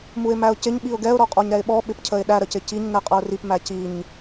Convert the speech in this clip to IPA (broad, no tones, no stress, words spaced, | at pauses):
muɪ̯mæʊ̯cɪɲ ɓiʊ̯ɡɛʊ̯ ɾɔqʼɔɲɾɛɪ̯ɓɔ ɓɪpcʰəɪ̯ɗæ ɾəcɪciɲ nɛqʼʌʊ̯rip mæciɲ